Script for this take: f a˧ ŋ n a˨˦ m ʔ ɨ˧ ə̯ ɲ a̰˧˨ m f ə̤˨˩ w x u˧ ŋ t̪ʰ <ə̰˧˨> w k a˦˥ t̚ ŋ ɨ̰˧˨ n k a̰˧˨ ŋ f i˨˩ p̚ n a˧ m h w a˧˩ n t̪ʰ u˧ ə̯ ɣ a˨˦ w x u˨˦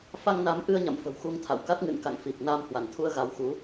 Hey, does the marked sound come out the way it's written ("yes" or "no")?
no